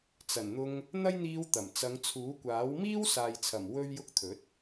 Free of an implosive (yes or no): yes